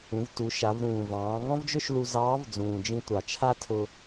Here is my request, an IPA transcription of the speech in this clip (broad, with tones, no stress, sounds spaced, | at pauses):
ũ˩˧ v t u˩˧ ʃ a˩˧ v ɾ ũː˩ v ɑ̃ː˩˧ ŋ ɔ̃˥ v d͡ʒ ɵ˥ ʃ l u˧ z ɑː˧˥ v d͡z ũː˩ d͡ʒ ĩ˧ tʷ ɑ˩ t͡ʃʰ a˥ tʰ ʊ˧